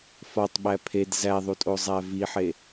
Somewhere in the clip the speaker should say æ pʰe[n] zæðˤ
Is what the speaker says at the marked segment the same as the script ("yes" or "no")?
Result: no